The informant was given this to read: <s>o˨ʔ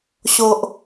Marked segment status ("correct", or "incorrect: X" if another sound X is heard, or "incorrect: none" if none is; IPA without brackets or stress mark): incorrect: ɕ